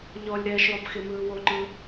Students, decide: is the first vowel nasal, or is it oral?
oral